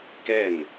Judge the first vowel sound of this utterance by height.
mid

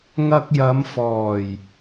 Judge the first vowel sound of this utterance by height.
low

